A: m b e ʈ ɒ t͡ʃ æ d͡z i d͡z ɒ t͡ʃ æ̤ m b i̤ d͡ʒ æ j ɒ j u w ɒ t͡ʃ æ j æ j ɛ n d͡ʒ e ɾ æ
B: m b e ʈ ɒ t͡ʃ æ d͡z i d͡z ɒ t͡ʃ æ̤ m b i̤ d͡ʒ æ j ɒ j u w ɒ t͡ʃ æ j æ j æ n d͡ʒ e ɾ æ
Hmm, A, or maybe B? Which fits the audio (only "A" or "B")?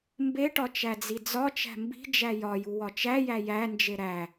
B